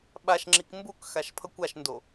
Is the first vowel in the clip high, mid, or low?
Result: low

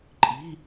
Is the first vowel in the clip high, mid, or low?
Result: high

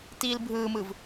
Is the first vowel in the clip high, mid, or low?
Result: high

